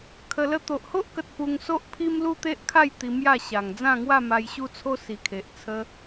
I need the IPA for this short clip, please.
kʰ ə˧ l ə˦ t̪ o˨ ʔ h o˦ ʔ k ə˨ t̚ p u˧ ŋ s o˦ ʔ pʰ i˦ m l u˦ t̪ e˦ ʔ kʰ a˥˧ j t̪ i˧ m j a˥˧ ɕ a˨˩ ŋ d͡z ã˥˧ ŋ w a˥˧ m a˧ j ɕ u˦ t͡sʰ o˦ s i˨˩ kʰ e˨ ʔ t͡sʰ ə˧

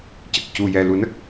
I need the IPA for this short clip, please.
c ə˨˩ k̚ c u˨˩ j ɛ˨˩ l u˨˩˦ n ə˦˥ k̚

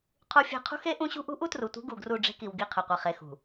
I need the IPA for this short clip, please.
qʰ u˦ fʲ e̤˦ qʰ ṳ˦ x e˦ ʔ ũ˦ ɕ ṳ˦ ʔ ṳ˦ ʔ u˦ t r u˨ tʷ e̤˦ ɡ u˨ ɡ r u˦˨ ɖ͡ʐ e̤˦ k i˨ w ɡ i˦˨ qʰ ɨ˨ qʷ e˨ χ e˨ x ṳ˨

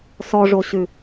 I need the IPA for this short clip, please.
s ɔ ʐ o ɕ ʉ

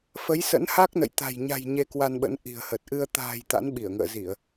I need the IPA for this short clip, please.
f ə˨˦ j s ə̰˧˥ n h a˦˥ k̚ n ə̰˧˨ j t̪ a̤˨˩ j ɲ a̤˨˩ j ɲ e˧ k w a˧ n ɓ ə̰˧˥ n ʔ i̤˨˩ ə̯ h ə˨˩ t̚ ʔ ɨ˧ ə̯ t̪ a̤ː˨˩ j t̪ a̰˧˥ n ɓ i˧˩ ə̯ ŋ ə̰ː˧˨ z i˧˩˨ ə̯

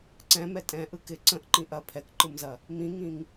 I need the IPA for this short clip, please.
ǀ ɛ̃ m ɛ tʼ ɛ̃ ʔ ɯ k ɪ ǀ ə̃ ʔ ǃ ĩ ʔ ɐ pʰ ɛ k ǃ ɯ m z ɐ | m ĩ ŋ ĩ ŋ

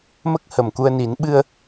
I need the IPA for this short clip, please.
m ə˦˥ k̚ h ə˨˩ m k u˧ ə̯ n i˨˩˦ n ɓ ɨ˧ ə̯

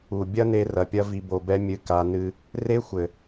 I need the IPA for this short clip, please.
u˨ bʲ ɐ˦ n e˧ r ɐ˨ pʲ ɐ˧ v i˨ b o˨ b ɛ˧ mʲ ɨ˧ k a˧ n ɨ˦ | r e˦ xʷ ɘ˨

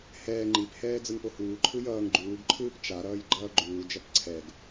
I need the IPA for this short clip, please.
h ɛː ŋ͡ǃ i p h ɛː d͡z ɯ ŋ p o h uː ǃʰ ɯ j ʌː ŋ ɡ͡ǃ uː ɡ ǃʰ ɯː p t͡ʃ a ɾ ʌː j ɡ͡ǃ ʌː ɡ͡ǃ uː d͡ʒ ʌ p ǀʰ ɛ ɡ

